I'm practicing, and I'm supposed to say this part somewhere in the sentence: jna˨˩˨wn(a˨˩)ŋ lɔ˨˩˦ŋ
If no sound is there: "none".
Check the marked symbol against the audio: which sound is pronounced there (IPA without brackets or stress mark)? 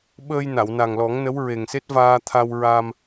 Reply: a˨˩